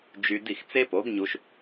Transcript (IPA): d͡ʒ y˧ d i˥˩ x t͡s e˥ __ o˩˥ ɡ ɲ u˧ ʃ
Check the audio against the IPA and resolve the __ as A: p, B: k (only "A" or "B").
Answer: A